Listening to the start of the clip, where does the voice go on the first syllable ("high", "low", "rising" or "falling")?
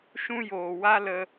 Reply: high